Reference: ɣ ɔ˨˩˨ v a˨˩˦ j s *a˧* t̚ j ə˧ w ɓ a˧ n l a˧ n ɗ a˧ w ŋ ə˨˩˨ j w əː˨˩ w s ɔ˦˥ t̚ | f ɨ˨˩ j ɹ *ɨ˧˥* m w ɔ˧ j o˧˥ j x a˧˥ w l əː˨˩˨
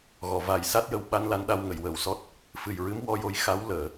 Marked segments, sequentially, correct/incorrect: incorrect, correct

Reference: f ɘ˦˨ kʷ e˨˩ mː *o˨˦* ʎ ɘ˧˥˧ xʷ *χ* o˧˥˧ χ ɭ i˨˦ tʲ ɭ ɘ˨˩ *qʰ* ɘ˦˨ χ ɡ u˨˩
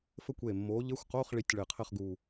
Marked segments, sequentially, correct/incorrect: correct, incorrect, correct

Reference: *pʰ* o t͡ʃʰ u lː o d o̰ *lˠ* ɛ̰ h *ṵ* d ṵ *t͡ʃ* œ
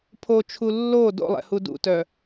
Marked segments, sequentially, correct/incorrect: correct, correct, incorrect, incorrect

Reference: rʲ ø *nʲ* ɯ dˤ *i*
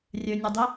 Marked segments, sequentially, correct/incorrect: correct, correct

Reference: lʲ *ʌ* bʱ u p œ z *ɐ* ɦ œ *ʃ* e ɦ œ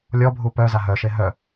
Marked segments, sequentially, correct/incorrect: incorrect, incorrect, correct

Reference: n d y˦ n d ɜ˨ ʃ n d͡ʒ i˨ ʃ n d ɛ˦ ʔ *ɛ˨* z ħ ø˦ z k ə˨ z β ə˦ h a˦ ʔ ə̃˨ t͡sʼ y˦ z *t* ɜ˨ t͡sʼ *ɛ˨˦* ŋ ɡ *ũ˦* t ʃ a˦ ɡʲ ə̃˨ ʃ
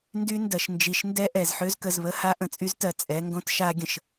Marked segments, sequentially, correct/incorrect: correct, correct, correct, incorrect

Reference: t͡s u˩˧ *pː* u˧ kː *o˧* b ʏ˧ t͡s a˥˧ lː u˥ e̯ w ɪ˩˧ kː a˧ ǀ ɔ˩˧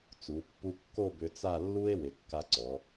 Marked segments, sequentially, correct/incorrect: correct, incorrect

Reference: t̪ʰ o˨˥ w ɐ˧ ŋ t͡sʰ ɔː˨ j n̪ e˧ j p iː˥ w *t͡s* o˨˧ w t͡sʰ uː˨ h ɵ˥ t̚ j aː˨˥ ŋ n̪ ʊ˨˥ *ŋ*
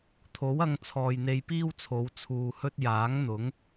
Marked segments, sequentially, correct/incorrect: incorrect, correct

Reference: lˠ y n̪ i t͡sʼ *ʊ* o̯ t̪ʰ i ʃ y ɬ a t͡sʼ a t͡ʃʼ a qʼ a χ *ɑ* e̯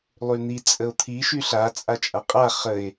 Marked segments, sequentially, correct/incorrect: incorrect, incorrect

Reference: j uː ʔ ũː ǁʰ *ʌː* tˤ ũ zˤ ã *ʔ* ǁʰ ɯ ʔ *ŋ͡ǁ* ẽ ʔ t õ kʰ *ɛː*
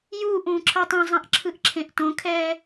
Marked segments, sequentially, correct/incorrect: correct, correct, incorrect, correct

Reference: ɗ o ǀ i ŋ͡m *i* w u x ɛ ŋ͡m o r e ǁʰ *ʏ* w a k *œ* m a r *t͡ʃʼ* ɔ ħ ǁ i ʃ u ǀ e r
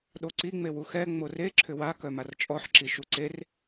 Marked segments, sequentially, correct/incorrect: incorrect, correct, correct, correct

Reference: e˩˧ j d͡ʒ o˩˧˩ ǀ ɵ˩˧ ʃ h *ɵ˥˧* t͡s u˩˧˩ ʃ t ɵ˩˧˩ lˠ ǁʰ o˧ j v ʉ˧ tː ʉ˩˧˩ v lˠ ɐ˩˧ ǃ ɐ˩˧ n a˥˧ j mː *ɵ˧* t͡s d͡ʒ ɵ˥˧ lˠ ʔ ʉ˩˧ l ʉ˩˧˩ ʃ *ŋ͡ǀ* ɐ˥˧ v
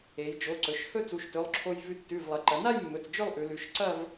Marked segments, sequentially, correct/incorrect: correct, incorrect, incorrect

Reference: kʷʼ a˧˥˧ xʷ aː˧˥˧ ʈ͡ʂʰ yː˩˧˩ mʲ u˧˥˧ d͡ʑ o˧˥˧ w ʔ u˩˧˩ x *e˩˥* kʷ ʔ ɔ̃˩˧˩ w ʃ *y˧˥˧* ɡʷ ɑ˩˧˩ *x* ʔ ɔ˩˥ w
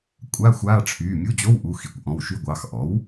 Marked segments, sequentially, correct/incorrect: incorrect, correct, correct

